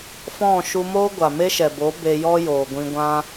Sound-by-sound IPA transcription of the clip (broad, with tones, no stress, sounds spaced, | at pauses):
f ɔ̃˦˨ ʃ u˧ m oː˦ ɡʷ a˨ m e˦ ʃ ɛ˨ b o˨˦ b e˧ j ɔ˦ j oː˨ ɡʷ ĩ˧ ɡʷ ã˦